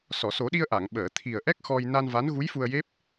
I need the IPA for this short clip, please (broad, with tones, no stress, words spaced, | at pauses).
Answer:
sɔ˨˩˨so˨˩˦ɗi˧ə̯ ʔa˨˩˨ŋɓəː˨˩˨ t̪ʰi˨˩ə̯ʔɛ˦˥k̚ xɔ˧j na˧nva˧˥n ɣu˧˥jfu˧ə̯je˦˥p̚